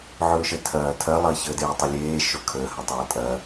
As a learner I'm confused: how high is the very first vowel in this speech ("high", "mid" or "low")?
mid